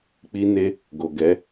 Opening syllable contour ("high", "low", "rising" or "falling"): high